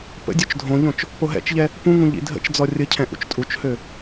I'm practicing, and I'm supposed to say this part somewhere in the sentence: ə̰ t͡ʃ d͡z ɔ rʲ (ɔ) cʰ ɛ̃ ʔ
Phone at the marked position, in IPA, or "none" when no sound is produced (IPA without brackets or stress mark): ə